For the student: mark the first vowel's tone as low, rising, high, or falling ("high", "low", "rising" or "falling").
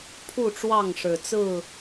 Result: falling